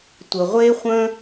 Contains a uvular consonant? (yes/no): yes